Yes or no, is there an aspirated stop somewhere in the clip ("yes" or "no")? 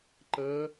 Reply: no